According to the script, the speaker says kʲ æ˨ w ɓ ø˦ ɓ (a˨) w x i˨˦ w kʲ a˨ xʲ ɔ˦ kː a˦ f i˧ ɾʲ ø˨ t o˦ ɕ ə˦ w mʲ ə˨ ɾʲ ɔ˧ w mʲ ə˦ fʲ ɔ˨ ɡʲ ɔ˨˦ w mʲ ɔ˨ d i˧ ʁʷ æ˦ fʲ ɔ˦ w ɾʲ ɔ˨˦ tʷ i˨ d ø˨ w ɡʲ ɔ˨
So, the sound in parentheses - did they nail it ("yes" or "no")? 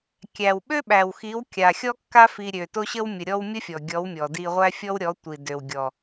no